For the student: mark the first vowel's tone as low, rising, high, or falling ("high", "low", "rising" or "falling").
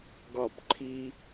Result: falling